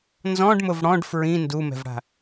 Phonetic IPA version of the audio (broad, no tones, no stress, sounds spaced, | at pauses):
n z ɔ̃ ɖ m ʊ v ɽ ɔ̃ ɖ f ɹ ĩ n d u m ɛ̤ v ɽ a̤